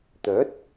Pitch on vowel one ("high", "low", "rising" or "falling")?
rising